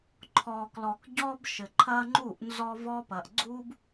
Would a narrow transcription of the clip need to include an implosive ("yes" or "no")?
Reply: no